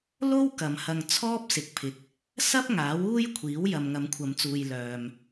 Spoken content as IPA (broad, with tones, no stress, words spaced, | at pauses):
lo˥w kɐ˨mhɐ˧ŋ t͡sʰɔː˥p̚sɪ˨k̚pʰɪ˨k̚ | sɐ˥p̚ ŋaː˨˥wuː˥jkʷʰiː˨˥w jɐ˨mŋɐ˨˧mkʷʰɐ˨˧mt͡suː˨j lœː˨m